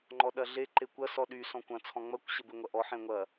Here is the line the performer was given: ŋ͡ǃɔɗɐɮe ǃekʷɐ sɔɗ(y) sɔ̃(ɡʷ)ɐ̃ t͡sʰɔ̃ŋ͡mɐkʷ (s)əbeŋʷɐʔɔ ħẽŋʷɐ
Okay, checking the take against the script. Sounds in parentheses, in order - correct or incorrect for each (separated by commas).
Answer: correct, incorrect, incorrect